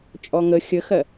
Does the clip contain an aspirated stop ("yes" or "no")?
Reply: no